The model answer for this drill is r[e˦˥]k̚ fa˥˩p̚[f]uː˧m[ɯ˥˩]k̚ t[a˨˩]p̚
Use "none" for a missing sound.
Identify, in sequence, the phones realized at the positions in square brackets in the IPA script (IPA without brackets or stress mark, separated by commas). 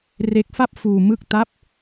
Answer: e˦˥, f, ɯ˥˩, a˦˥